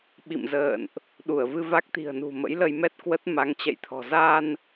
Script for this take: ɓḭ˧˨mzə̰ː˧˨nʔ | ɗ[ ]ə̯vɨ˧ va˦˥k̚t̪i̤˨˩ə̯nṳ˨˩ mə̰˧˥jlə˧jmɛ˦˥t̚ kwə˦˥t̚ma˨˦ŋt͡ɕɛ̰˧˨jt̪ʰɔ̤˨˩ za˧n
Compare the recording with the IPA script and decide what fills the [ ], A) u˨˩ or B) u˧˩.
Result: B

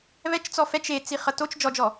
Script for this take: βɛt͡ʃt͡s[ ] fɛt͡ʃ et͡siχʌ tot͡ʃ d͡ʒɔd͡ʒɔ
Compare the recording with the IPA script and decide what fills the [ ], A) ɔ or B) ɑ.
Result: A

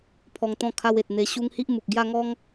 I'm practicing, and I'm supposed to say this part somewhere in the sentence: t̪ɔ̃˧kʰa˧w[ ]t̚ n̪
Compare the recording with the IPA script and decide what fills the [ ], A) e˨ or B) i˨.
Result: A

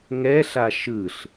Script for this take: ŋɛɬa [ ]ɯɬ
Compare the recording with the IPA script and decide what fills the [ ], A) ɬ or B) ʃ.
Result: B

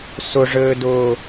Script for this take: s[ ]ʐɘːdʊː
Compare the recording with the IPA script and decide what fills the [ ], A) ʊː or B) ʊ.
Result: B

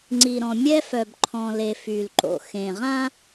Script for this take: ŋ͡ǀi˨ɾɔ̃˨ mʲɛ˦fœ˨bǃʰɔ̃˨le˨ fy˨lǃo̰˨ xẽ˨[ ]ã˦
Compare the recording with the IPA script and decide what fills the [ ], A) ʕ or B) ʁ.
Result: B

